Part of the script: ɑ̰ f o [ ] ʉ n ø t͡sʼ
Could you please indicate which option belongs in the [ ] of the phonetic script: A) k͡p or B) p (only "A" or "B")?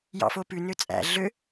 B